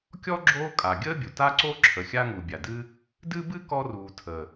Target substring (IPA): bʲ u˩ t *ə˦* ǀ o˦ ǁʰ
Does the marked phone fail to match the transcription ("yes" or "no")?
yes